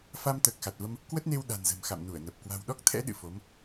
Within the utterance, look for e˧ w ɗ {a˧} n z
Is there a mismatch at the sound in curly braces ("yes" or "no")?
yes